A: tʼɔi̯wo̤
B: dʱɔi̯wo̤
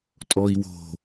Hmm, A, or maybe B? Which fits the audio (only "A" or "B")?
A